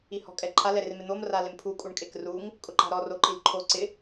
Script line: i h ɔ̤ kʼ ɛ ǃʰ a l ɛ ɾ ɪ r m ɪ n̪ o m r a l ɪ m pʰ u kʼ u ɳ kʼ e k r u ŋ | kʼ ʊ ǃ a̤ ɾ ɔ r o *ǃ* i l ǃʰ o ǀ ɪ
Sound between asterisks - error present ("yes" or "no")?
no